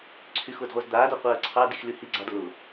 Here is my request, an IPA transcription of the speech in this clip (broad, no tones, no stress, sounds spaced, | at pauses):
ǀʰ y x ʊː d ʁʷ ɜ z d̪ aː d ɔ qʷ ɜː ǀʰ ɑ d i x l y h i ɡ͡ǀ ɑ d l ʊ